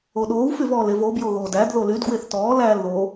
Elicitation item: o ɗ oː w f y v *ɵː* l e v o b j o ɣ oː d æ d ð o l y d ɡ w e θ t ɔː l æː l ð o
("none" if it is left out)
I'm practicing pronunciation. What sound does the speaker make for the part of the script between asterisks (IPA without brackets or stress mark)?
ɔː